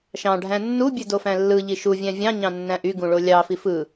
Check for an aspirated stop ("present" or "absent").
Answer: absent